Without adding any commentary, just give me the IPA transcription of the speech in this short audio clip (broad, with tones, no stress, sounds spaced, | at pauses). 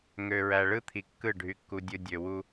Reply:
ŋ ø˨ ɹ æ˨ ɭ ɯ˦ t̪ʰ i˨ kː ɯ˦˨ ɖʱ y˦ kː u˦ dʲ ɯ˦ dʲ ø˨ w u˦